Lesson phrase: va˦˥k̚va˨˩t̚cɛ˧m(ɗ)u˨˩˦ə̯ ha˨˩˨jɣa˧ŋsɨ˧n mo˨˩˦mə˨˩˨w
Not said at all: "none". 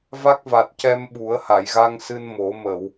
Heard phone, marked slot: ɓ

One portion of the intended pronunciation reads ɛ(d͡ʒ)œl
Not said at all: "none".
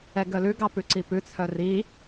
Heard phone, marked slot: ɡ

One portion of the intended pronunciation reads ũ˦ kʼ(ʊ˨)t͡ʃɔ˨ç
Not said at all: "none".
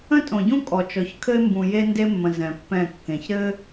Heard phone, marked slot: ɔ˨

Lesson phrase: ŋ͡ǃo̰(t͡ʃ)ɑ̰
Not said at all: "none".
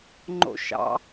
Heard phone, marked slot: ʃ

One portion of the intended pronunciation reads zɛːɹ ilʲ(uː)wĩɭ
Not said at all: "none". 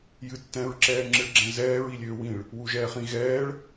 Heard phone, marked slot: øː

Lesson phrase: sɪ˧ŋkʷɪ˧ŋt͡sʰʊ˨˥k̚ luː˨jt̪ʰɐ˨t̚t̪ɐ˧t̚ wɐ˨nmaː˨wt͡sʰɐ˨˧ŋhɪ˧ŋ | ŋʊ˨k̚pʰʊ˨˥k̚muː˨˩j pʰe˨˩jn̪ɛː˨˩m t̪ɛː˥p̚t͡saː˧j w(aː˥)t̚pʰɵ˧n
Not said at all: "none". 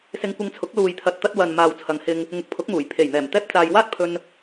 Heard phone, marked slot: aː˥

